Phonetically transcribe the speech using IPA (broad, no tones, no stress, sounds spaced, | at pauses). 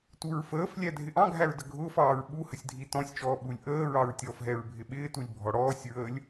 t u ɹ f əː f lʲ æ dʱ ɪ ʔ ɑ̃ ɡʱ æ ɹ d ə ɡʱ ʊː f ɑː ɹ ɓ u h ə sʲ dʱ i t ɔ̃ sʲ t͡ʃ ɔː ɓ u lʲ ʔ əː ɹ ɑ ɹ tʲ ɔ f ɦ ɛ ɹ bʱ ɪ ɓ ɪː t u lʲ bʱ ɔ ɽ ɔː sʲ ɹ əː lʲ